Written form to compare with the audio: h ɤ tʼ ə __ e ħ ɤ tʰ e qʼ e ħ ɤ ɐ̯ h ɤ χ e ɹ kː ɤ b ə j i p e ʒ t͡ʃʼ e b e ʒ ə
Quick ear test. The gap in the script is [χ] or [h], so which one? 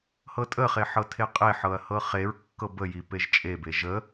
χ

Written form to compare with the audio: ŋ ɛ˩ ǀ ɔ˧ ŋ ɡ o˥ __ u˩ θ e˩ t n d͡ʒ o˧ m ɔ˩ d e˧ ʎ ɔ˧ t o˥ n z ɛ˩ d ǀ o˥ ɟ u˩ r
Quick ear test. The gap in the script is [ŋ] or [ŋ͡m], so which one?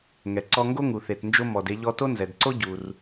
ŋ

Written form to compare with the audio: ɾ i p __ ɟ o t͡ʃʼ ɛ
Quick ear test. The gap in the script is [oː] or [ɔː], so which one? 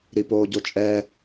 oː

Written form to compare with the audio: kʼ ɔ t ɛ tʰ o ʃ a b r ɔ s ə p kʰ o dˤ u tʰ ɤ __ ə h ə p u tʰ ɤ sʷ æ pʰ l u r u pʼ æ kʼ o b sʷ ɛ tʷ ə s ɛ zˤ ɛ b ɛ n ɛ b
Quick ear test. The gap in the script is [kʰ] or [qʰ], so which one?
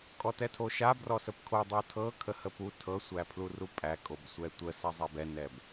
kʰ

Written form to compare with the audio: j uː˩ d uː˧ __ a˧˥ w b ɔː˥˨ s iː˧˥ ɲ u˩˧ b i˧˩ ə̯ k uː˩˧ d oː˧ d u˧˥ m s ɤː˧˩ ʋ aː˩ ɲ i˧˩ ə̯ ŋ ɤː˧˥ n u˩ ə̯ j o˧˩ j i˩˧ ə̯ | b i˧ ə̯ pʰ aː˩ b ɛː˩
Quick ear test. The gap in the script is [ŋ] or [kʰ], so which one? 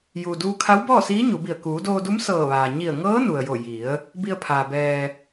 kʰ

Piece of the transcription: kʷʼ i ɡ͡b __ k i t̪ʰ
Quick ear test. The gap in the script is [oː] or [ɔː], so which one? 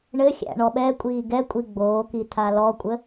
oː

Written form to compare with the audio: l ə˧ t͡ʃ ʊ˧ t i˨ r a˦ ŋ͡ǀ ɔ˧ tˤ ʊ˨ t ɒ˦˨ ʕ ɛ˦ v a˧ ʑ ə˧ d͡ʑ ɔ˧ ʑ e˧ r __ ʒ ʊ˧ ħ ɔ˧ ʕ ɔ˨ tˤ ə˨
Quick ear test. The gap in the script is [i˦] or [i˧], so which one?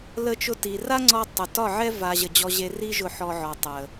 i˦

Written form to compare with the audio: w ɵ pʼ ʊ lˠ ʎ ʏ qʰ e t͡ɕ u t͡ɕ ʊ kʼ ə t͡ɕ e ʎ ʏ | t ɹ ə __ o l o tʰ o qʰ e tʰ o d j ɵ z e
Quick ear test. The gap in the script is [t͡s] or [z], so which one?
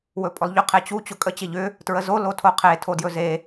z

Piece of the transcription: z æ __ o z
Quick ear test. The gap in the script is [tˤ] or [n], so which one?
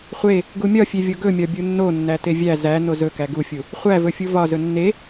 n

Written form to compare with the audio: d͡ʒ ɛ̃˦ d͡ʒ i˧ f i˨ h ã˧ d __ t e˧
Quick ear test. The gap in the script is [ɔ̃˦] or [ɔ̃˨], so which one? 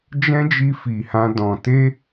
ɔ̃˨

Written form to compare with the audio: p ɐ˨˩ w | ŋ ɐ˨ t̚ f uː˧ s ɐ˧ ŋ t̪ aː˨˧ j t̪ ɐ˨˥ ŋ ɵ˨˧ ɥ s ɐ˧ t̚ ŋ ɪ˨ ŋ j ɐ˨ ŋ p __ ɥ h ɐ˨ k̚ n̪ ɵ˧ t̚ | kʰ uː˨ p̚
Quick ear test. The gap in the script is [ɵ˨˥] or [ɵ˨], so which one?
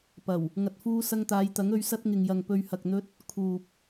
ɵ˨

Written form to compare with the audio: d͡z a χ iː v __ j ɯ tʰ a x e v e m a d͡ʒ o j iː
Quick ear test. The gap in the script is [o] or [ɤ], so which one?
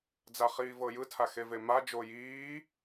ɤ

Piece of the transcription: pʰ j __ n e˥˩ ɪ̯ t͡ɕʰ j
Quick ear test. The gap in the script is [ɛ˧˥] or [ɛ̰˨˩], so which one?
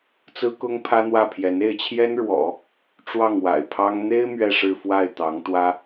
ɛ˧˥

